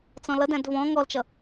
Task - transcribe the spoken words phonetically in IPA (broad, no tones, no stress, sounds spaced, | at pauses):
t͡s ɔ̃ l ʌ d æ̃ d v ɔ̃ ŋ ɔ l t͡ʃ ʌ